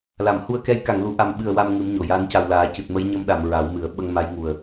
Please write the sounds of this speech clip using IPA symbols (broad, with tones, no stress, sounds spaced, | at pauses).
l a˨˩˨ m h u˧ ə̯ k ɛ˧˥ j k a˨˩˨ ŋ l u˨˩˨ ʔ a˨˩ m ɓ ɨ˨˩ ə̯ w a˧ m ŋ ɨ˧˥ m ɲ o˨˩ j a˧˥ n c a˨˩ w l aː˨˩˦ c ɨ˨˩ t̚ m ə˧˥ j ɲ ə˧ m ɗ a˨˩˨ m ɹ a˨˩˦ w m ɨ˨˩˦ ə̯ ɓ ə˧ ŋ m a˧˥ j ŋ u˨˩ ə̯